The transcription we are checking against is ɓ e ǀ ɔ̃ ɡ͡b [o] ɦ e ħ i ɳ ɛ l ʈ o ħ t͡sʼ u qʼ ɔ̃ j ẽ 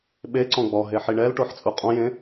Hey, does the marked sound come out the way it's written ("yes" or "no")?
no